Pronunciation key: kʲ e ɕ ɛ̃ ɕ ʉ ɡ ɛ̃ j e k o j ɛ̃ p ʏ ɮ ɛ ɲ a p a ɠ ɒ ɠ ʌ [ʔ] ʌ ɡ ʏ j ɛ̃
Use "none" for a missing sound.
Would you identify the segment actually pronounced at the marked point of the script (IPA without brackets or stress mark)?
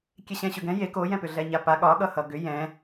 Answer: h